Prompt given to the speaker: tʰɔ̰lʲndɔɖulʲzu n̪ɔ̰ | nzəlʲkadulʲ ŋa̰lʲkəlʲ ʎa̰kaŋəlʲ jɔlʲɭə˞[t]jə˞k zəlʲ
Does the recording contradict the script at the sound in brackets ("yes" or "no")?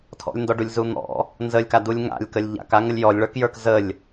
yes